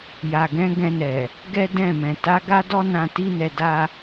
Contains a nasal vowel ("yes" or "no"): yes